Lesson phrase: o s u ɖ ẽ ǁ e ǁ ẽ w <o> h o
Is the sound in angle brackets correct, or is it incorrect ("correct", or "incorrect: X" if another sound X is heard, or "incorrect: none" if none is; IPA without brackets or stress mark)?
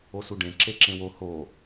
correct